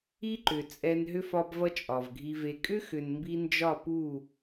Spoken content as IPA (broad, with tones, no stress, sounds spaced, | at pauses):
i˦ ǃ ʏ˨ t͡sʼ ɛ˧ n ɦ ʏ˦ f ɒ˧ b v ʌ˦ t͡ʃʼ ɒ˨ v ɡʱ i˧ v e˧ kʼ ʏ˦ x ʏ˨ n m b i˧ n d͡ʒ ɒ˦˨ p u˦˨